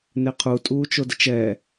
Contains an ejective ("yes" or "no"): yes